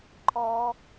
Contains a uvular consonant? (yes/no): no